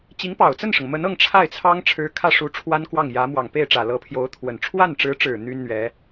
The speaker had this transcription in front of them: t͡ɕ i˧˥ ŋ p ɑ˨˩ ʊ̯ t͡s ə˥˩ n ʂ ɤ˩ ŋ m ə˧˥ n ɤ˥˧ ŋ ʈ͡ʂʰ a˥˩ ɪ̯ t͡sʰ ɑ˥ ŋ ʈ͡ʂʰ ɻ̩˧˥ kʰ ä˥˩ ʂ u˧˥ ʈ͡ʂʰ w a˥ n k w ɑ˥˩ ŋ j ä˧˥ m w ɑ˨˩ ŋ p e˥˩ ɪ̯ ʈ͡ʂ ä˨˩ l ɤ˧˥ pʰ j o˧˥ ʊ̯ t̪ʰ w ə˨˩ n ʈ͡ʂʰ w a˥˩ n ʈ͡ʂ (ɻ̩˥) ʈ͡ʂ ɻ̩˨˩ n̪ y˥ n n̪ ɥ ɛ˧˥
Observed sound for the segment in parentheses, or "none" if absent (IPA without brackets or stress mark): ɻ̩˧˥